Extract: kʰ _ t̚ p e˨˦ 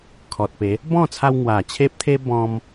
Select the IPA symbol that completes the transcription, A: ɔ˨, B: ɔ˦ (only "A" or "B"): A